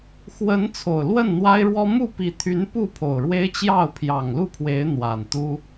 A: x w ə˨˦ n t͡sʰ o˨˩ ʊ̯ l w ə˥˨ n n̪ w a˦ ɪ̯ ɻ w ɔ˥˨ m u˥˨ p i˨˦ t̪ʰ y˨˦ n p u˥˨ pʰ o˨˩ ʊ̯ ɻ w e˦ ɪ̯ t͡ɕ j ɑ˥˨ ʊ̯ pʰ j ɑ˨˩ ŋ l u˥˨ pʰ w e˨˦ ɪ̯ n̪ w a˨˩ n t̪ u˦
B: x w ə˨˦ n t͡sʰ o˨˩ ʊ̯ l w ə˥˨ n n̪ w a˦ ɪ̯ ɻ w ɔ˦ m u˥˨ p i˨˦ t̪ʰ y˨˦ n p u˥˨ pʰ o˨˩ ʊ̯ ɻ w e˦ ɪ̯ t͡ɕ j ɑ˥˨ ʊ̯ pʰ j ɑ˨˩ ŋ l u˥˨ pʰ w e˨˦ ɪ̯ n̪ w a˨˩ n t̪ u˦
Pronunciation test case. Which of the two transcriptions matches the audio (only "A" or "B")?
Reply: B